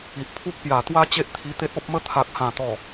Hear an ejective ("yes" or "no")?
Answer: no